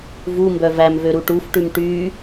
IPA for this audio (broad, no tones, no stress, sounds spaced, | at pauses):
v u m b œ v æ m v ø ɾ u ʈ u f ʈ ʉ m ʈ y